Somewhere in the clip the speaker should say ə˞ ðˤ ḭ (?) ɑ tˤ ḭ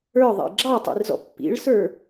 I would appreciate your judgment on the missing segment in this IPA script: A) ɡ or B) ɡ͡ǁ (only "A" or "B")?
B